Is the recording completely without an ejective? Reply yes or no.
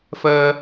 yes